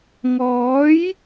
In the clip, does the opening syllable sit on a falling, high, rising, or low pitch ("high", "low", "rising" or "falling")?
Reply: rising